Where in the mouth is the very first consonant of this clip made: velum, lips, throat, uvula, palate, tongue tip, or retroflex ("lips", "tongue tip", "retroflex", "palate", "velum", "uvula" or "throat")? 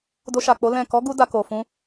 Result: tongue tip